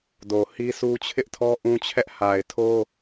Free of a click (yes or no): yes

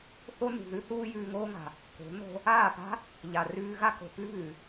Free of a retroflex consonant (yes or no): yes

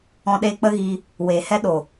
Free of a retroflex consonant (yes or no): yes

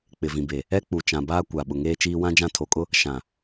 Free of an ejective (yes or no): no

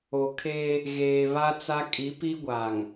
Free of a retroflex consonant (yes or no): yes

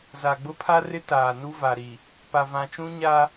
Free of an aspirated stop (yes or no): no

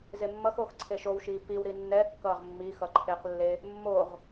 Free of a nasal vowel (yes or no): yes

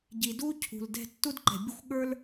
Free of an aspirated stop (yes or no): no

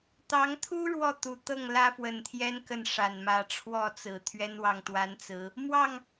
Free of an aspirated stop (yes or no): no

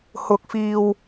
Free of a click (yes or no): yes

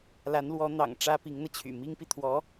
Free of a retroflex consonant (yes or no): no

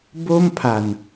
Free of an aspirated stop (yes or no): no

